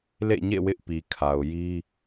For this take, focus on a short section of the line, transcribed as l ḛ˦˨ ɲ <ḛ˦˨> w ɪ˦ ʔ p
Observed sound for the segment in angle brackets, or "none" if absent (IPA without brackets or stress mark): ḛ˦˨